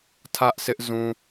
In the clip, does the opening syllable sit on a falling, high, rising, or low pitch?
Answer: high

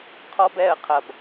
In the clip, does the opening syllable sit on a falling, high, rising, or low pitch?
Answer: high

